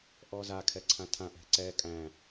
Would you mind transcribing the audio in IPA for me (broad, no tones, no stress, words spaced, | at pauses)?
ʔɔzakʰɛ ǀʰãtʰã ʔɛ̤ǀɛ kʼæ̃